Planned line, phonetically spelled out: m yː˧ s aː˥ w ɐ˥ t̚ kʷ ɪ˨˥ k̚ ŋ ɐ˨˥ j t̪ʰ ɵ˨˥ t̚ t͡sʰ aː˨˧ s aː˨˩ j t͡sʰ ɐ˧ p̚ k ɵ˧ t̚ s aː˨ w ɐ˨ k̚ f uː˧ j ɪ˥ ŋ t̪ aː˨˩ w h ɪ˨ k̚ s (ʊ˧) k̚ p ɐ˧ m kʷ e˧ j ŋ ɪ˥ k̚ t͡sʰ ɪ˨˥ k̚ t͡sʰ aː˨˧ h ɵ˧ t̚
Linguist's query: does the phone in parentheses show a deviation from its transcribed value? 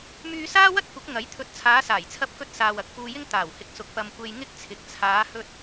yes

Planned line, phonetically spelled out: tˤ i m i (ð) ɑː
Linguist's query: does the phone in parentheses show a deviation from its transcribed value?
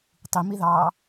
no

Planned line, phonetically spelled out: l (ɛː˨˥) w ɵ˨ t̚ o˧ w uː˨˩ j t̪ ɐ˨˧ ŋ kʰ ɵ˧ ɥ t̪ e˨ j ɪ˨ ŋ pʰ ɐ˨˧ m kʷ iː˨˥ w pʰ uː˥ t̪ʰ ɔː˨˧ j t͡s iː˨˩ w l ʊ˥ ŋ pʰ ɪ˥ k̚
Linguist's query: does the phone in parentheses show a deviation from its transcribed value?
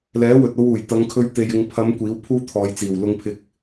no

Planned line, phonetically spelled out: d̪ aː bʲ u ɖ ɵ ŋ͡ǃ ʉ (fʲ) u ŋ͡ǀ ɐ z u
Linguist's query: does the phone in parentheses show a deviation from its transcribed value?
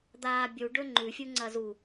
no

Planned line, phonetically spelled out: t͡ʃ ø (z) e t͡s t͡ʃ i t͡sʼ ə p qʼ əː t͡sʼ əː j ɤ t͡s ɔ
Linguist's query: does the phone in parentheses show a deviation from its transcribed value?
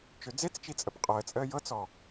yes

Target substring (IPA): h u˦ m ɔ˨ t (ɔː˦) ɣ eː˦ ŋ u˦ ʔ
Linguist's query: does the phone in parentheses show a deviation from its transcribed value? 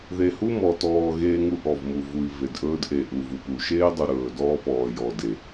yes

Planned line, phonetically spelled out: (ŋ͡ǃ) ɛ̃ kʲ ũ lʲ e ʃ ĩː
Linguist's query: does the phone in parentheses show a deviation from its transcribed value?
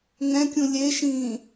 yes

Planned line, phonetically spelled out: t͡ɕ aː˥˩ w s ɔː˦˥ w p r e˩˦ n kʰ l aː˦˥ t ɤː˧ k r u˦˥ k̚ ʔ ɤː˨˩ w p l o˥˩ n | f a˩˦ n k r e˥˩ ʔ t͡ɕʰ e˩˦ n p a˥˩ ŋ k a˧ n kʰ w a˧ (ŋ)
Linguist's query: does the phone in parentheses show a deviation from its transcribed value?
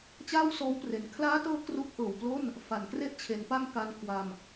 yes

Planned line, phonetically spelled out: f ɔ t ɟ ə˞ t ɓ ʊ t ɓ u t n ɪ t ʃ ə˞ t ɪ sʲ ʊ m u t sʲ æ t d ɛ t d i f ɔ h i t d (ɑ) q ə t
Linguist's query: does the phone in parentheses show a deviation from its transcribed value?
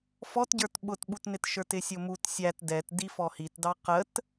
no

